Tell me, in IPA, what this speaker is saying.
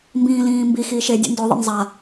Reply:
m b ĩː l ĩː m b i x iː ʃ e dʲ o̰ n d o ðˤ ḛ n zˤ a

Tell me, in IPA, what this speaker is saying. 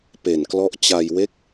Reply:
p e˨˩ n k l ɔ˦˥ ʔ t͡ɕ a˧ j w e˦˥ k̚

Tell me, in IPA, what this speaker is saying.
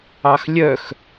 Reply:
ɑ x lʲ œ x

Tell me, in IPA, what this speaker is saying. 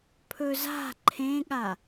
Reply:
pʰ ɵ z a̤ ǃʰ ẽ ɠ a

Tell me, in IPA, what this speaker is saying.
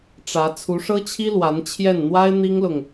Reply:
ʈ͡ʂ ä˧˥ t͡sʰ u˧˥ ʂ ɤ˥ t͡ɕʰ i˥ l w a˧˥ n t͡ɕʰ j ɛ˥˩ n n̪ w a˥ ɪ̯ n̪ i˥ ŋ l ʊ˨ ŋ

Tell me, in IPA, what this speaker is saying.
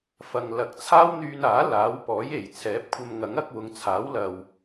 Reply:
f ɐ˨ ŋ l ɐ˨˥ k̚ t͡sʰ aː˥ w n̪ yː˧ n aː˨˥ l aː˨˥ w p ɔː˨˥ j e˨˩ j t͡sʰ ɛː˨˥ p̚ kʷʰ ɐ˧ m ŋ ɐ˨˥ ŋ ɐ˨˥ k̚ w ʊ˨˧ ŋ t͡sʰ aː˨˥ w l ɐ˨ w

